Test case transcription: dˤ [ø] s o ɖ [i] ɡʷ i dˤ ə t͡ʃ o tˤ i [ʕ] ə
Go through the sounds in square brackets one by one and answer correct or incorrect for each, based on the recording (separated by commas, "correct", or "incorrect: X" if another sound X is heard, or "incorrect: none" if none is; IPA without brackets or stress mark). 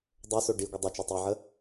correct, correct, correct